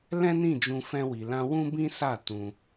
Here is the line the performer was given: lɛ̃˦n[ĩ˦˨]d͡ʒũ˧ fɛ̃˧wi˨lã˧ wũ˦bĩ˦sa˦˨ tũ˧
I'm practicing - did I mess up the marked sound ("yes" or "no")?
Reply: no